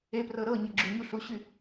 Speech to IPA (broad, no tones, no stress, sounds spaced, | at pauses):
e p r ɤ ɾ ɤ ɲ ɤ ɡ͡ǁ ʉ ɲ u ɬ u ɕ y